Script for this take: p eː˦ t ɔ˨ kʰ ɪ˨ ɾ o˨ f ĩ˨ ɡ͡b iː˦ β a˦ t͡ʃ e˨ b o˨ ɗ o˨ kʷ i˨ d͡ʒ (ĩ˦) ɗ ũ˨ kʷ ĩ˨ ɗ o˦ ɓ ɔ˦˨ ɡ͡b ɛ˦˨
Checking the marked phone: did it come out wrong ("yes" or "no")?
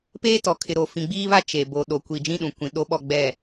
no